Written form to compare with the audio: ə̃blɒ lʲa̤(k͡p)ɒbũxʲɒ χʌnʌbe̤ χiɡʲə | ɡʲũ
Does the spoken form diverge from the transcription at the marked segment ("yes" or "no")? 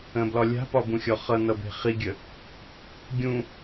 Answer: yes